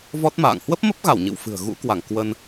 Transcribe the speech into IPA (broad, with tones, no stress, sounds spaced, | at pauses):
v ɔ˦˥ t̚ m a̰ː˧˨ ŋ h w ə˦˥ p̚ m ə˦˥ p̚ ɣ a˧˩ w ɲ ɨ̰˧˨ w f ɨ̤˨˩ ə̯ ɣ ṵ˧˥ k w a˧˩ ŋ k w ə˧ n